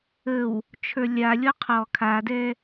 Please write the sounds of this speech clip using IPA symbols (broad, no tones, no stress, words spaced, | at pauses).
əw | t͡ʃʰə˞lʲalʲɔ qʰɔ kʰadɛ